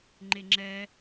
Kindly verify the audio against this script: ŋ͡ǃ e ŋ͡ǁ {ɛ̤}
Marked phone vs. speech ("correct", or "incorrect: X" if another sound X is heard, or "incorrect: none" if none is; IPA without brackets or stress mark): incorrect: ɛ